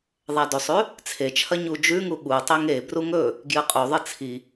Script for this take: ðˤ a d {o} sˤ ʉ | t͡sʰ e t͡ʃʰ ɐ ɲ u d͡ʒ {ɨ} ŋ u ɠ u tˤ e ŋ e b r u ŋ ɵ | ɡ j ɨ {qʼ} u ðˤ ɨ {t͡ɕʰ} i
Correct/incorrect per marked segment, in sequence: incorrect, incorrect, correct, incorrect

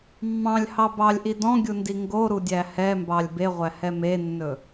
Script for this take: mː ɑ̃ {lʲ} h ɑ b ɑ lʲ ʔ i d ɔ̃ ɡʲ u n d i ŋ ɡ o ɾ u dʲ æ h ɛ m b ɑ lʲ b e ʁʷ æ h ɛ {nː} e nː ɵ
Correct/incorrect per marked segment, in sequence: correct, incorrect

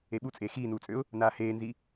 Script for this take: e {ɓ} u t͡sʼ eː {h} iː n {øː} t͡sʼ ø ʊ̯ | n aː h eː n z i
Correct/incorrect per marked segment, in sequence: correct, incorrect, incorrect

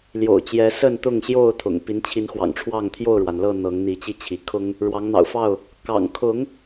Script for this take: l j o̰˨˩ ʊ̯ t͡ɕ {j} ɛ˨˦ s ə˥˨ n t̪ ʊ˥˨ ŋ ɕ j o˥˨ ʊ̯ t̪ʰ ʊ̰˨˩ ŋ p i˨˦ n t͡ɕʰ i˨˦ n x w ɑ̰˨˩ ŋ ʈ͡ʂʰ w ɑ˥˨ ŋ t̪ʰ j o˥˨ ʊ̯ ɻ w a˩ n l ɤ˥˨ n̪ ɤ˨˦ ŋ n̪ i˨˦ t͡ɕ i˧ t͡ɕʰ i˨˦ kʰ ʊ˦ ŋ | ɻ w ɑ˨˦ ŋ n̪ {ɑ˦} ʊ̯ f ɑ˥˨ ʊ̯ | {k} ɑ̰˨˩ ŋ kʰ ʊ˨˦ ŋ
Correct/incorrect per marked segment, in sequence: correct, incorrect, correct

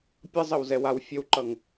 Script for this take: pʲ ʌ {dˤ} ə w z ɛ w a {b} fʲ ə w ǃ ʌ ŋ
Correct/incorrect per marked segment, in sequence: incorrect, incorrect

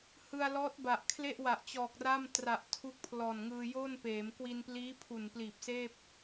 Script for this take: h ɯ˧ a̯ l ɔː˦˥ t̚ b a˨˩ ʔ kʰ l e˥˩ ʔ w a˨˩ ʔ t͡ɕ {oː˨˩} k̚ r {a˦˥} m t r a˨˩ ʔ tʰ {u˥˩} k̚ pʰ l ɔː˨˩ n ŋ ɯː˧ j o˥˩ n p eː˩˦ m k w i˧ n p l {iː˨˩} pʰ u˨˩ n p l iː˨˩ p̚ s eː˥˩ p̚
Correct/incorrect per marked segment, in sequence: incorrect, incorrect, incorrect, incorrect

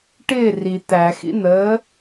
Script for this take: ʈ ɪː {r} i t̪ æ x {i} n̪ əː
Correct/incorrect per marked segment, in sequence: correct, incorrect

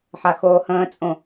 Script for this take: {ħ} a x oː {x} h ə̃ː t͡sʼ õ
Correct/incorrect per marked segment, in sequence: correct, incorrect

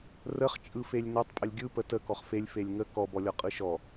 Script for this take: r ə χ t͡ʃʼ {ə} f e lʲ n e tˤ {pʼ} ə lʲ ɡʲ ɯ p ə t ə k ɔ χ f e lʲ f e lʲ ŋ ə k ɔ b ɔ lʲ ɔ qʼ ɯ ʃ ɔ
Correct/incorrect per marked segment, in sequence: incorrect, correct

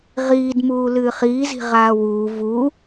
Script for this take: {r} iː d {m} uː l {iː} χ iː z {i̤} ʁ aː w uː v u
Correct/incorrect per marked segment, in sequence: incorrect, correct, incorrect, correct

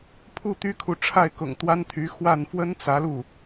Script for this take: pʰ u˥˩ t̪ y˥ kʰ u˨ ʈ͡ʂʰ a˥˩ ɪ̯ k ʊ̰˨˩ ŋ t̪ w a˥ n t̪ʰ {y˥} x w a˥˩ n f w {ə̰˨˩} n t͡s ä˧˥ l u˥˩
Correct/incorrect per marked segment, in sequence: incorrect, incorrect

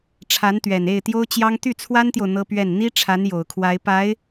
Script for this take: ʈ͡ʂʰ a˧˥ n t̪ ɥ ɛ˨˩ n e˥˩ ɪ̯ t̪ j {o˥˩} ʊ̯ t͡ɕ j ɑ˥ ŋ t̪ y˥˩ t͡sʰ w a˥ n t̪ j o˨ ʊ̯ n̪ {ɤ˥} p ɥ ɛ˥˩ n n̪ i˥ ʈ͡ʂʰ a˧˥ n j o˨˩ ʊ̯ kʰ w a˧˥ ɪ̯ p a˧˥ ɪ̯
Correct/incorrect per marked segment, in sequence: incorrect, correct

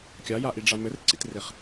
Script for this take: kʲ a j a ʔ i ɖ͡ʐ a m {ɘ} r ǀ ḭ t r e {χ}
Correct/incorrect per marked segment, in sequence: correct, correct

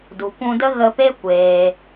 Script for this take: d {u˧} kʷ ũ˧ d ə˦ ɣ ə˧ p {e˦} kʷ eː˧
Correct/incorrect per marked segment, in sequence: incorrect, correct

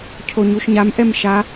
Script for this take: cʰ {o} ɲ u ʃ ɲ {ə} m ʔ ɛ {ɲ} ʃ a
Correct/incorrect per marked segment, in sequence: correct, incorrect, incorrect

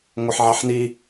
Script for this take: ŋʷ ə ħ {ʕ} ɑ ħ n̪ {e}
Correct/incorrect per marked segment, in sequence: correct, incorrect

